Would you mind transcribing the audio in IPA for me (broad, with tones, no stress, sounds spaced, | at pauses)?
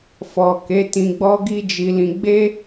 f ɔ˨ k e˨˦ t ĩ˧ ɡ͡b ɔ˦ ɡ i˦ d͡ʒ i˧ l ĩ˧ ɡ͡b e˦